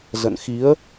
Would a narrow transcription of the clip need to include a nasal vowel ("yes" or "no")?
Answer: no